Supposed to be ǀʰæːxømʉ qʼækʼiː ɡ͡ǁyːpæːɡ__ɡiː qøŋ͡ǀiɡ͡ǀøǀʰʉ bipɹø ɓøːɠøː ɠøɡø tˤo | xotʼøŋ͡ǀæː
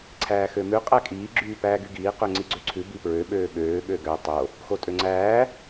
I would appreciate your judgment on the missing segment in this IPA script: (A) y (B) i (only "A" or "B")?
A